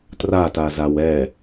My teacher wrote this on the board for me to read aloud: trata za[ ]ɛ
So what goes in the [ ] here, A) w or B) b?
A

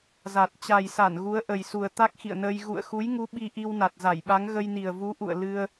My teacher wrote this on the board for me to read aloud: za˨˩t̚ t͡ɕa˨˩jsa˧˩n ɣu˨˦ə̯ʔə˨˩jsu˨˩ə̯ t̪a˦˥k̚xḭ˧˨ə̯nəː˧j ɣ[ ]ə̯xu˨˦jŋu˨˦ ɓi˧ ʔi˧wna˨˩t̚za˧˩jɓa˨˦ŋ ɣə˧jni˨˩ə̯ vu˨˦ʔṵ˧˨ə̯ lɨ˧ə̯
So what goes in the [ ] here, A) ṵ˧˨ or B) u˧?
A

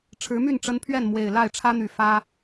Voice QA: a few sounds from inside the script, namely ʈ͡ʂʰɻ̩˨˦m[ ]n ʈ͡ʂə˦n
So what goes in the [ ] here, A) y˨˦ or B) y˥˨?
B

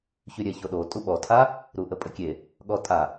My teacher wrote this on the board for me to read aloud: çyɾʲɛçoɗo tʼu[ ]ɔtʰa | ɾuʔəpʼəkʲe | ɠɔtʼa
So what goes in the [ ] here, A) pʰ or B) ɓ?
B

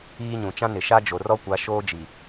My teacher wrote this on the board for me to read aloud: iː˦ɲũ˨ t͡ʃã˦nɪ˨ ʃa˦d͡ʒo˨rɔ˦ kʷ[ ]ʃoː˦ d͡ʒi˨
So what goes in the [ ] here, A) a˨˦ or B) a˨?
A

